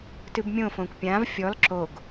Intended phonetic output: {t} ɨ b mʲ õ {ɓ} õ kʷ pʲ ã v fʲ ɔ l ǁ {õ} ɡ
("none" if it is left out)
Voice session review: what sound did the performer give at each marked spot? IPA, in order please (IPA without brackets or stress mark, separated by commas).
t, f, o